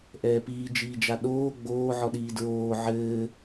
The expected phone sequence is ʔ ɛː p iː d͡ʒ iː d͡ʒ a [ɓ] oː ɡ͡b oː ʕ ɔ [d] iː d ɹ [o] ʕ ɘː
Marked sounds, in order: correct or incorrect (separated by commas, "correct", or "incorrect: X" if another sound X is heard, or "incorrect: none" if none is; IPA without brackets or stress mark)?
incorrect: ɗ, incorrect: ɗ, incorrect: oː